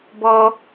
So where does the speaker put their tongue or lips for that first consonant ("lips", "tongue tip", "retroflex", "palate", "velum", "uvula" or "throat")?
lips